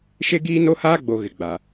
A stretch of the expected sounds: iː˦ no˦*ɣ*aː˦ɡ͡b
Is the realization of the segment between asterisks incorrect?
yes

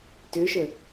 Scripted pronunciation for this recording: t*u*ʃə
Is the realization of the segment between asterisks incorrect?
yes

